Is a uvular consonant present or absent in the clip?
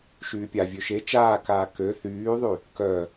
absent